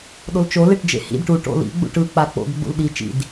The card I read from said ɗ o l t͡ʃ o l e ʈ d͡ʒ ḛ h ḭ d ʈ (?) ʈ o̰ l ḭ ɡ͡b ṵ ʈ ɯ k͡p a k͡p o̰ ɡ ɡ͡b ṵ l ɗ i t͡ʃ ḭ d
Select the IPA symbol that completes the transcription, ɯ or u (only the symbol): u